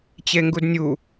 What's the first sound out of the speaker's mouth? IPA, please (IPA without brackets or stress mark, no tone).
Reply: t͡ɕ